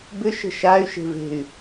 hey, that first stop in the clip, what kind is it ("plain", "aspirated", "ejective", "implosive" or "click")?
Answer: plain